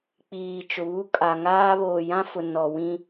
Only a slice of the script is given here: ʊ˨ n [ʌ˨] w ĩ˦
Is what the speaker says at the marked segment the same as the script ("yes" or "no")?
no